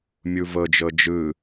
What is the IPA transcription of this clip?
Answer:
mʲ u v ɤ d͡ʒ ɤ d͡ʒ ɯ

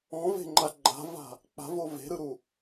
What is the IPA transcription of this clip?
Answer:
ɔ̃ v e̤ ŋ͡ǃ a ɡ͡ǃ a̤ v a̤ | k͡p a̤ v o v e̤ ɾ ɯ ɾ u

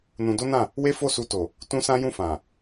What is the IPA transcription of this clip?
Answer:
n ũ˧ d o˦ n ã˦˨ | w e˦ f o˦˨ s u˧ t o˨ | t ũ˦ s ã˦ j ũ˦˨ f ã˨

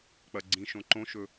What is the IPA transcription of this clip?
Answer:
k͡p ɐ ɡ͡ǀ ĩ ʃ õ ǃ õ ʃ ɵ

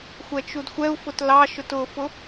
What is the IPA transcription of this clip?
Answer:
xʷ ɛ t͡ʃ u d xʷ ɛ u̯ f ʊ t l ɑ ʃ ʊ t ʊ f ʊ

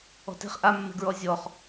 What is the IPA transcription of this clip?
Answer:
ɔ̤ t e̤ χ ʔ a mː e̤ ɡ ɹ ɔ zʲ ɔ χ

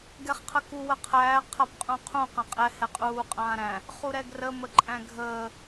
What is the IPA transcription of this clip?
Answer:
ɡ ɛ χ qʰ ə k u w ə qʰ æː qʰ a p qʼ ũ qʰ ũ q ã qʼ ɛ h ɛ qʼ uː qʼ ãː ɾ æ̃ | χ u ɾ ɛ ɡ r ə m ə ǃʼ æ̃ ɡʱ əː

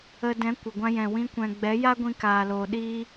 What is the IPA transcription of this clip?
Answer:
ə˧ d ɛ̃˨˦ kʷ ə˨ ɡʷ ã˧ j ɛ̃˨ w ĩ˧ kʷ ɛ̃˨ ɡ͡b ɛ˨˦ j a˦ ɡʷ ĩ˧ k aː˨ l oː˨ ɗ iː˦

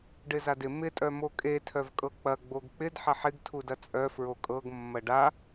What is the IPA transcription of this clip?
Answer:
ɖ ɪ z a d ɪ m ɪ tʼ œ m o kʼ e tʰ œ v kʼ ɤ k͡p ɐ ɡ͡b o ɡ k͡p ɪ d ħ ɐ ħ ɪ ɡ tʰ u d ɐ t͡sʼ œ f ɹ o kʼ ɤ ɡ mː ɐ ɖ a

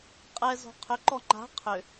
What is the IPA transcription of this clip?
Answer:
qʼ ɛ z ɔ̤ qʰ ʏ ǃ ɔ ŋ͡ǃ a̤ qʰ ʏ

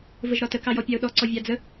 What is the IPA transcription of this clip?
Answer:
v ə ʒ ɾ ɒ t ə k ɑ j ɔ pʲ ɑ ʊ̯ ɗ ɔ ǀ ɔ vʲ ɑ d͡z ə

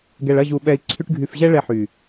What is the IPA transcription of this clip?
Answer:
ɡ ɛ˨ ɭ ɐ˦˨ ʑ u˨ ɓ ɛ˧ i̯ ǀʰ y˦ ʈ ɡʱ y˧ f ʑ ɛ˦ ɭ ɛ˧ ħ y˨

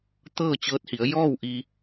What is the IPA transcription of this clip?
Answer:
t̪ ɤː˥˨ t͡ɕ ɤː˧˥ t̚ h i˩˧ ə̯ j ɔː˥˨ w ʔ i˧

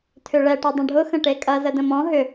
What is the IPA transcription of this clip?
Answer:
tʰ ʏ ɭ ɛ ʈ ə dˤ ə̃ ɖʱ ʊ x ə̃ ʈ e kʼ ɐ z ə d ə̃ m ɔ̃ ɦ ʏ

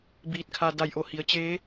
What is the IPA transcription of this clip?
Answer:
b iː˧˩ t̚ kʰ a˧ d a˧˩ j ʔ o˥˨ h i˩˧ ə̯ t͡ɕ eː˧˥

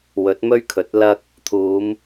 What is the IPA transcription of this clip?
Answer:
w ɵ˨˥ t̚ m ɵ˥ ɥ kʰ ɵ˨˥ t̚ l ɐ˧ k̚ | t̪ʰ uː˨˧ m

